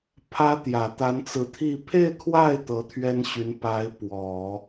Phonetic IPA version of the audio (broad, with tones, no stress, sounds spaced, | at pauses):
pʰ ä˧˥ t̪ j ä˨˩ t̪ a˧˥ n t͡s ɹ̩˧˥ t̪ʰ i˥˧ pʰ e˥˧ ɪ̯ kʰ w a˥˩ ɪ̯ t̪ ɤ˧˥ t̪ʰ ɥ ɛ˥ n ɕ y˧˥ n p a˧˥ ɪ̯ p w ɔ˨˩˦